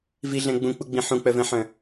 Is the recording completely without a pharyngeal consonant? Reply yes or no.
no